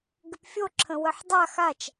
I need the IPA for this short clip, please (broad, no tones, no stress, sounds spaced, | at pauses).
ɡ ɪ p fʲ o ǁʰ ə̃ w ə ħ dˤ a x a t͡ʃ